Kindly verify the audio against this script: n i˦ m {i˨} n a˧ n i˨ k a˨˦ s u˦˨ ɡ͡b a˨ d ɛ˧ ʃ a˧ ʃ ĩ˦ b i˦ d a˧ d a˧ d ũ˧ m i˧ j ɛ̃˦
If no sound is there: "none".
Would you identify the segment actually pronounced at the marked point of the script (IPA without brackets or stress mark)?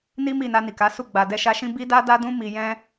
i˦˨